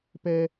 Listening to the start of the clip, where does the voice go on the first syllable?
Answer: high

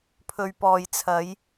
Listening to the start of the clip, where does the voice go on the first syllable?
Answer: low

